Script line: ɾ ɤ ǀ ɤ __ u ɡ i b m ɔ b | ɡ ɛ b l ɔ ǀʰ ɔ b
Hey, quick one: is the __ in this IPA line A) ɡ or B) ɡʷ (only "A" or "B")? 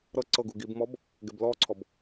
A